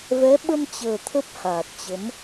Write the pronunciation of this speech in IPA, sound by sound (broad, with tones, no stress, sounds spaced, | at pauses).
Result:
v ɛ˨˦ ɓ ə˧ m t͡ɕ əː˨˩ t̪ʰ ə˦˥ p̚ h aː˨˩ t̚ t͡ɕ ə˨˦ m